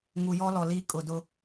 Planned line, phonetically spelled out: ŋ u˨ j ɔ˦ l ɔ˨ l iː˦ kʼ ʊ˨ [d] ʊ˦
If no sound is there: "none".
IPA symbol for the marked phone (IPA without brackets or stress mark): d